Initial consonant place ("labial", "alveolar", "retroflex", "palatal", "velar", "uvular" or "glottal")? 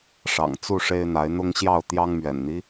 retroflex